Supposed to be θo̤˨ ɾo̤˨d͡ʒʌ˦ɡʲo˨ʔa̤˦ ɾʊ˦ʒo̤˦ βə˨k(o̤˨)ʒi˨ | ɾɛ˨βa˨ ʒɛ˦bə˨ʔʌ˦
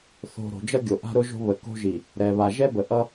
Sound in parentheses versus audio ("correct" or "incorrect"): incorrect